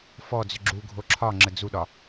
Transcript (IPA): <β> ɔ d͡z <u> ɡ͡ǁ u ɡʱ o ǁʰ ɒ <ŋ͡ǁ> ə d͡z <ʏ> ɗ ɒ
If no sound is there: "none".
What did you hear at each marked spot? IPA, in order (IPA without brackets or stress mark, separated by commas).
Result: f, ʏ, ŋ͡ǁ, u